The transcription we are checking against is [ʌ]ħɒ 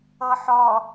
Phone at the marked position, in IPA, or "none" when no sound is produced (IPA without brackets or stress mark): ʌ